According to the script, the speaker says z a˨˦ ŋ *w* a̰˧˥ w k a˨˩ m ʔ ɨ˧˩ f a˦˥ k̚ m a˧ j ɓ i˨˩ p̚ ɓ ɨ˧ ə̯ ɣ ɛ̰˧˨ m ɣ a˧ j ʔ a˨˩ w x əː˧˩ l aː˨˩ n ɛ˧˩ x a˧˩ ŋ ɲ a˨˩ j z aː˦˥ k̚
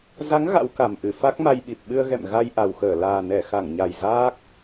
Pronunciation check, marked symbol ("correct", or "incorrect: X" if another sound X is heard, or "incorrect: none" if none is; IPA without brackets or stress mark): incorrect: ɣ